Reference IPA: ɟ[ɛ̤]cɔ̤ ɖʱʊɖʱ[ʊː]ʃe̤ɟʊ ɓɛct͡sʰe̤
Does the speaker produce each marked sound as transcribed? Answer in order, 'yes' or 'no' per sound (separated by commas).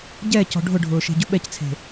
no, yes